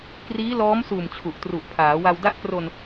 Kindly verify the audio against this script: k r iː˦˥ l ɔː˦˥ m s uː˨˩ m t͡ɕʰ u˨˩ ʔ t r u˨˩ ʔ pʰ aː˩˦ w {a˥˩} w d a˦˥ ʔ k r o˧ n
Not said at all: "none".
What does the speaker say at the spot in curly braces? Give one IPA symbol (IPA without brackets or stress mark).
a˧